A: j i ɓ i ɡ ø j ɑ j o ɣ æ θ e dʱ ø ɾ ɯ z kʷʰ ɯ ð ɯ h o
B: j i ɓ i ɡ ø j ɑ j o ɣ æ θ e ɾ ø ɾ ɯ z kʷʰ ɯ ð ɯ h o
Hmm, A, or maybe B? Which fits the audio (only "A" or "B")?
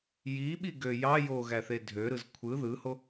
A